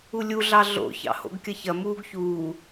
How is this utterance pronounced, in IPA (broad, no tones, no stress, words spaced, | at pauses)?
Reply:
ulʲu ɮɑɮo̰ çɑ̰ho̰ɡkʲɐçɐ muːɡçuː